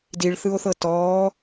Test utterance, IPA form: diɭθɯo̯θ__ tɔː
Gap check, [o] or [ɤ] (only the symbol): ɤ